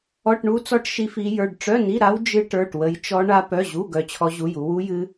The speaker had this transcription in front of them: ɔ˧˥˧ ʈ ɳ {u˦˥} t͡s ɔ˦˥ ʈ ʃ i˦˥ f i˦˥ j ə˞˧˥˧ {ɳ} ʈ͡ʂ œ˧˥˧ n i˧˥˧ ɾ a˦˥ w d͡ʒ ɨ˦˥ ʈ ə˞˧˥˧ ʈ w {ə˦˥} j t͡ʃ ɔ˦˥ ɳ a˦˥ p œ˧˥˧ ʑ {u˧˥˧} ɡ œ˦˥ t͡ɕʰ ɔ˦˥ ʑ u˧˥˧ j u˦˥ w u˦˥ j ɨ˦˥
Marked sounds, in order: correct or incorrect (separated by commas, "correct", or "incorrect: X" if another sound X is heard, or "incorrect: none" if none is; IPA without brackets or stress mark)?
correct, incorrect: ɖ, correct, correct